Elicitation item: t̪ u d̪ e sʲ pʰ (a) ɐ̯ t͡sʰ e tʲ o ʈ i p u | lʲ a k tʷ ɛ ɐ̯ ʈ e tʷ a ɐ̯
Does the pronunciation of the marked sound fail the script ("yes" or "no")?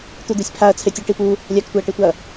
no